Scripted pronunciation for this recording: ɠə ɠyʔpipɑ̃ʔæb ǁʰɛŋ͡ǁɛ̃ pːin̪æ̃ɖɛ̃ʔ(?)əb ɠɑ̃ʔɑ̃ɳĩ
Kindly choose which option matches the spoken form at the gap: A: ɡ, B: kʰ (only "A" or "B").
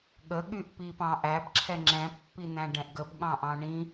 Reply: A